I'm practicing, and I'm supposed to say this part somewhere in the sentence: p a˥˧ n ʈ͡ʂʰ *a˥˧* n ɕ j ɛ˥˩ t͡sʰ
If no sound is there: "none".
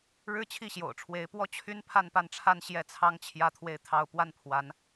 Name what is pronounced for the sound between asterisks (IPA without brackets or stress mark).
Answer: a˥˧